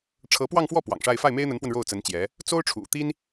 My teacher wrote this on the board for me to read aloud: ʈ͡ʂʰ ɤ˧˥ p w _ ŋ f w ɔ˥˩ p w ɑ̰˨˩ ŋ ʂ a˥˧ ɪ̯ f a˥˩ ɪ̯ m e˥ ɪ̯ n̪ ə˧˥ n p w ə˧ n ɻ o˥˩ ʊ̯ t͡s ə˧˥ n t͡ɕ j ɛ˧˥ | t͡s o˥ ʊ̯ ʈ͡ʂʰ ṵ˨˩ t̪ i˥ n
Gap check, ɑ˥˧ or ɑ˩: ɑ˥˧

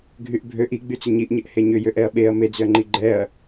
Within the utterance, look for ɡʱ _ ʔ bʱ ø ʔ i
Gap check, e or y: y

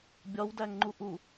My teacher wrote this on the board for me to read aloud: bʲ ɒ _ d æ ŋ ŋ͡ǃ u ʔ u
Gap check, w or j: w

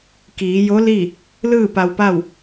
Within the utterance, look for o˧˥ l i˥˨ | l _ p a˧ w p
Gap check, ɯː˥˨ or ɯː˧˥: ɯː˥˨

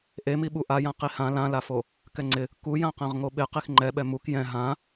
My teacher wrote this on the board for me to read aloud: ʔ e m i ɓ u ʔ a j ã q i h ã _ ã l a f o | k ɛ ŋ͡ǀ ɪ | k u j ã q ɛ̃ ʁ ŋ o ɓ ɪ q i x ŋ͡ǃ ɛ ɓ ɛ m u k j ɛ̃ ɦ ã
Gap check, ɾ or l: l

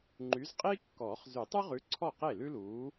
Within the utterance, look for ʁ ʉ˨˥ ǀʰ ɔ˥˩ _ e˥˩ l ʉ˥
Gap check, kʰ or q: q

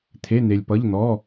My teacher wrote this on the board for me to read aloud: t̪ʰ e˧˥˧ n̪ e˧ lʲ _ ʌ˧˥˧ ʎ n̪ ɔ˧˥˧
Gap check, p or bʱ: p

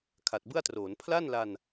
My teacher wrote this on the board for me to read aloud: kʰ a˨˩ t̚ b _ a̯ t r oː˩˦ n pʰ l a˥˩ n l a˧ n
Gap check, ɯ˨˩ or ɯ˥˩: ɯ˥˩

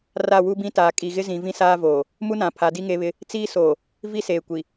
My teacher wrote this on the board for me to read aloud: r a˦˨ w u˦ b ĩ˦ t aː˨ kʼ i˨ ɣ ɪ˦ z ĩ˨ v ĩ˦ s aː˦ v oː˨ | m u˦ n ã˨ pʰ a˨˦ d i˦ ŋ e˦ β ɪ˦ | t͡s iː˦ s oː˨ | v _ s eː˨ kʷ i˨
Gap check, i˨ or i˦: i˦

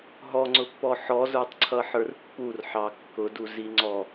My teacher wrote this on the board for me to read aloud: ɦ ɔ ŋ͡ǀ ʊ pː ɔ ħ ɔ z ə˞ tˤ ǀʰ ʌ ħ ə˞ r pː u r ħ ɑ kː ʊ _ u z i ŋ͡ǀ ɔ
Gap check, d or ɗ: d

